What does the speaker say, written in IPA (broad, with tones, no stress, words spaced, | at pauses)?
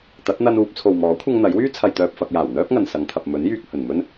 t̪ɐ˨˥t̚ n̪ɐ˧nuː˧p̚ t͡sʰo˨wmɔː˨˥kʷʰɐ˧ŋ n̪ɐ˨˥jwyː˥ t͡sʰɐ˨jt̪œː˨p̚fɐ˨k̚jaː˨˩w n̪œː˥p̚ŋɐ˨nsɐ˨˧ŋ t̪ʰɐ˨p̚mɵ˨˥njyː˧k̚ hɵ˨nmɵ˥n